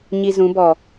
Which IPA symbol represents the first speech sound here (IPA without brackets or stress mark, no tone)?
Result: ɲ